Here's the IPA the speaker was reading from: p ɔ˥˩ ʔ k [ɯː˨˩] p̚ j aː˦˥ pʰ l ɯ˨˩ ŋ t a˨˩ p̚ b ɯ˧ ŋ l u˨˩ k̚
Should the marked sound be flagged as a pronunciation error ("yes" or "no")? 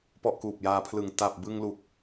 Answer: yes